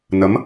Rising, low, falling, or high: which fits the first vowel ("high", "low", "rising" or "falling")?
rising